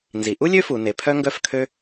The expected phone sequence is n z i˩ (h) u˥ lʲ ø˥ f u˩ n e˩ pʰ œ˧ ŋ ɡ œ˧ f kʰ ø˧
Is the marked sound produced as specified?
no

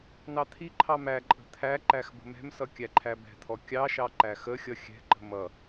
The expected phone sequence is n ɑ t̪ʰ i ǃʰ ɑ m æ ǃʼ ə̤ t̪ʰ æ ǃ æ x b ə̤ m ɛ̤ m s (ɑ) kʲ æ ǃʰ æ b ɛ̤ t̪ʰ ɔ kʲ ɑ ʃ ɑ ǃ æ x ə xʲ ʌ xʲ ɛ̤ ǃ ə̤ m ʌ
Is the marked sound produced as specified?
no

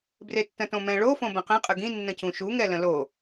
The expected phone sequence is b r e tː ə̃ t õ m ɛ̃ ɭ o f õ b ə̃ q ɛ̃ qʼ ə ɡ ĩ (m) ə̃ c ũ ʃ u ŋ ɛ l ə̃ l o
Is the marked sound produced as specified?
no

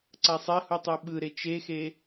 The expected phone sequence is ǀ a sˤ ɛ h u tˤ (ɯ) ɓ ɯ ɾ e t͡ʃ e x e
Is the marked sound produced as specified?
yes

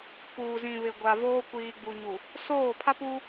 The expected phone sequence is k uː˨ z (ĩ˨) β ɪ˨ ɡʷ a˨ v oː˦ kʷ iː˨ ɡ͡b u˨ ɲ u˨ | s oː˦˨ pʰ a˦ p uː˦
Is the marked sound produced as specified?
yes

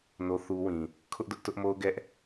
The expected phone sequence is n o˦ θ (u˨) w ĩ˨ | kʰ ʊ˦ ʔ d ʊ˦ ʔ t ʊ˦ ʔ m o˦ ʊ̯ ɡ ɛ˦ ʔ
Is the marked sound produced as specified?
no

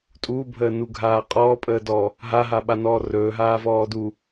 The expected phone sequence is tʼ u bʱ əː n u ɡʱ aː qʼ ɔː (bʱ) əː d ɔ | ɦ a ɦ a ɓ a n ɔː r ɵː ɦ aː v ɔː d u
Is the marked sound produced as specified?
no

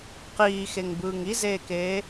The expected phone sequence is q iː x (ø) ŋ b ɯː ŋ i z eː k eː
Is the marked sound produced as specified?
no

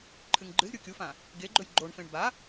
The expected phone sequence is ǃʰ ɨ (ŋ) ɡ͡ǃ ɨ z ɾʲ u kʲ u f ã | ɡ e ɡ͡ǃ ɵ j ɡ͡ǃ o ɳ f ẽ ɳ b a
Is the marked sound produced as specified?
yes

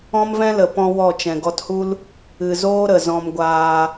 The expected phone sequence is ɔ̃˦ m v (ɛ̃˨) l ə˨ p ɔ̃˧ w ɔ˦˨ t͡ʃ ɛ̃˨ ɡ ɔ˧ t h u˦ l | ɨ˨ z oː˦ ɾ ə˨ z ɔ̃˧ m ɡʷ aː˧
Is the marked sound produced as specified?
no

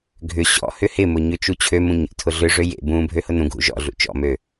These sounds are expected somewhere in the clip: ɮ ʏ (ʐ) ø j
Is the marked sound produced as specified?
yes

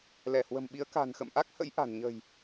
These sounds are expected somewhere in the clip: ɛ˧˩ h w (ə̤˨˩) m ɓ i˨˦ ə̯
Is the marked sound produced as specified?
yes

